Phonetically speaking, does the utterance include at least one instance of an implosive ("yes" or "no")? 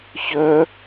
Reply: no